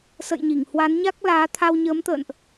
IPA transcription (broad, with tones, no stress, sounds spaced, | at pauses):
s ə̰˧˨ j ɲ i˧˩ ŋ h w a˨˦ n ɲ a˦˥ k̚ l aː˨˦ t̪ʰ a˧ w ɲ əː˨˦ m t̪ ə̰ː˧˨ n ʔ